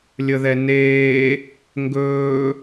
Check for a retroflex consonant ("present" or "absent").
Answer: absent